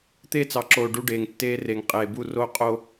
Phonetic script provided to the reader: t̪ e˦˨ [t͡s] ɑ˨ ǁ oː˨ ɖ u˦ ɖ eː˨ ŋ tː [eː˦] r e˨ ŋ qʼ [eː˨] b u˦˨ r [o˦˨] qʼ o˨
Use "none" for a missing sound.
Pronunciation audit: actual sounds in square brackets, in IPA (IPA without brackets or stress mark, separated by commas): t͡s, eː˦, eː˨, o˦˨